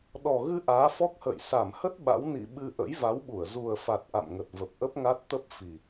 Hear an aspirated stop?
no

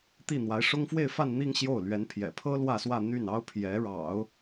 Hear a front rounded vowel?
yes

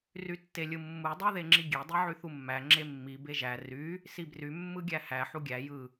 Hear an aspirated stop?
no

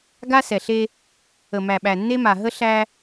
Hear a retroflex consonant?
no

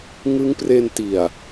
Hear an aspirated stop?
no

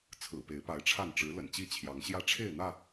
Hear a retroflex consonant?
yes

